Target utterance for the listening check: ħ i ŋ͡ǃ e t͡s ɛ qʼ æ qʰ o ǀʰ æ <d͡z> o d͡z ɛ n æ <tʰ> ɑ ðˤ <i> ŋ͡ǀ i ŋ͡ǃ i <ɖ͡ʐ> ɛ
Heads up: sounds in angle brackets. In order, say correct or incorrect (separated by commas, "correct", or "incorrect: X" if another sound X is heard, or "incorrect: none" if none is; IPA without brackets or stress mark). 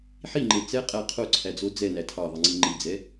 correct, correct, correct, incorrect: d͡z